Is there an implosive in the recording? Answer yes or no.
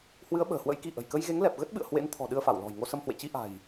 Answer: yes